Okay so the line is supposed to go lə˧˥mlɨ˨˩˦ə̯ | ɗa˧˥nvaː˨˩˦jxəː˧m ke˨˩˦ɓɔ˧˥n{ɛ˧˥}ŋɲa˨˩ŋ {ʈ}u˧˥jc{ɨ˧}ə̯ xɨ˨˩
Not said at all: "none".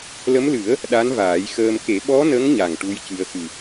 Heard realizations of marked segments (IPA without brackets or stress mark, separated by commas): ə˧˥, ʈ, ɨ˧